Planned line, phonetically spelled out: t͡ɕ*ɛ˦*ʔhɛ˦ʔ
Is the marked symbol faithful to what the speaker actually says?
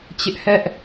no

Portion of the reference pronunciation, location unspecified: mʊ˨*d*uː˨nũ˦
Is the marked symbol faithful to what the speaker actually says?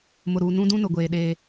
no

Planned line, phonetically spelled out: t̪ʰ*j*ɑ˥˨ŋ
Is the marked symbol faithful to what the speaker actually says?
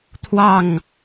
no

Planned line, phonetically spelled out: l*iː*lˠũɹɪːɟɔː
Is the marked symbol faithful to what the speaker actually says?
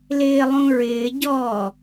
no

